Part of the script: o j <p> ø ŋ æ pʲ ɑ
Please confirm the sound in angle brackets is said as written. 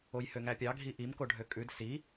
no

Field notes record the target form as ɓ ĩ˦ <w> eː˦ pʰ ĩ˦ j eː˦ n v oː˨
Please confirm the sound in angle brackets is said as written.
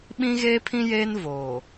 no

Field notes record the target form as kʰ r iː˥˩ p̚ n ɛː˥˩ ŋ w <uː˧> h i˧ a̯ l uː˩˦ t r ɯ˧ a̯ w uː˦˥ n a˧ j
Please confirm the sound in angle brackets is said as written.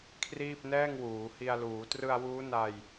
no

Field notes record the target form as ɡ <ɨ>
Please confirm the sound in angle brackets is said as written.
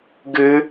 yes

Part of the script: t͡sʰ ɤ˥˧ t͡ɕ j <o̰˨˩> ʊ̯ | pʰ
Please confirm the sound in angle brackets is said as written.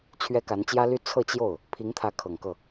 no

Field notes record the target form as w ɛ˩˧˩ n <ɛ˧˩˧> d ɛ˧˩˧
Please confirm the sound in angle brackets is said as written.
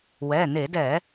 no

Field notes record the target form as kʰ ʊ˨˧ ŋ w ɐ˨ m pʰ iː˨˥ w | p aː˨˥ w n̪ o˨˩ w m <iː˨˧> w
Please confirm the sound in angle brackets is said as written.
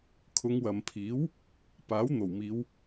yes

